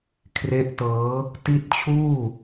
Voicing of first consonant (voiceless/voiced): voiceless